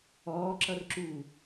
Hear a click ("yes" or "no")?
yes